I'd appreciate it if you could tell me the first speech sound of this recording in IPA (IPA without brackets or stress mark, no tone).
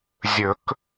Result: zʲ